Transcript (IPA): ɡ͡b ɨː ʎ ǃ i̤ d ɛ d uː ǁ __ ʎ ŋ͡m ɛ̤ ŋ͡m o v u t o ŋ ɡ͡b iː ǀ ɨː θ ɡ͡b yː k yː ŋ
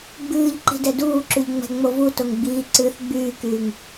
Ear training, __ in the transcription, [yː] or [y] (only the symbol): y